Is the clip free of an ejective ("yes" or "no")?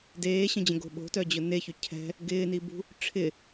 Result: yes